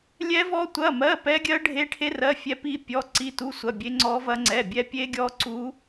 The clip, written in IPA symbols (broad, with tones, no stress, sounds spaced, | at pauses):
lʲ ɛ˦˥ v ɔ˦˥ tʷ ɐ˧˥˧ m ɜ˧˥˧ p ɛ˦˥ ɡʲ ɜ˦˥ ɖʱ e˦˥ ʈʰ e˦˥ r ɜ˧˥˧ fʲ ɛ˦˥ p i˦˥ pʲ ɔ˧˥˧ ǀ i˦˥ t u˧˥˧ sʷ ɐ˧˥˧ bʲ e˦˥ ŋ͡ǀ ɔ˦˥ v ɐ˦˥ ŋ͡ǀ ɛ˧˥˧ bʲ ɛ˦˥ pʲ e˦˥ ɡʲ ɔ˦˥ ǀ u˦˥